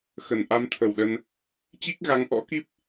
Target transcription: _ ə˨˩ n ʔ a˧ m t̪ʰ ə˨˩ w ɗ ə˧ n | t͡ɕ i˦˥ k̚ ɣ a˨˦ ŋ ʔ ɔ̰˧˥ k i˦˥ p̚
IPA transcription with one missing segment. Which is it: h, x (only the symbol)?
x